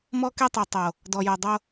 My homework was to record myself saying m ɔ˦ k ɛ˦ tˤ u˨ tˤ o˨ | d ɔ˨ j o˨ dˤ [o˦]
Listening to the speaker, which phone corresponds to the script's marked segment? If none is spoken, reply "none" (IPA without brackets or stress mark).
o˦